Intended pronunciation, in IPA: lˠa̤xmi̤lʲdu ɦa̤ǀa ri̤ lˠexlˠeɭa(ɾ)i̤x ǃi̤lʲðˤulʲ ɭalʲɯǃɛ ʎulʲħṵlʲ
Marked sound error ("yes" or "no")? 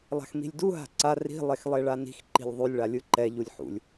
yes